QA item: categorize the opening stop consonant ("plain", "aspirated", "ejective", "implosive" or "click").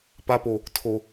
plain